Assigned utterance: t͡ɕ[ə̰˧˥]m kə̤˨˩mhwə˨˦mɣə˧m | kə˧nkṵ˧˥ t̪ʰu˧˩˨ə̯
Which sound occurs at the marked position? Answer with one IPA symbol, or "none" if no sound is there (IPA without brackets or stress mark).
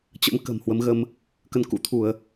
ə̰˧˥